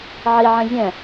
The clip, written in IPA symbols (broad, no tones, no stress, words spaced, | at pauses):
ʕiʕɛ̃ zʲɛ̃